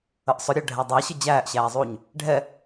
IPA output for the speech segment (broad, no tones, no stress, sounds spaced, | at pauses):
ə ʔ sˤ ʊ ɾʲ ɜ ɖʱ æ dˤ æ ɕ ə d͡ʑ æː ʔ ɕ æː zˤ uː ɲ | ɖʱ ɛ